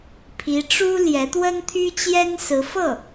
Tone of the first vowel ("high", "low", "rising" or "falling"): rising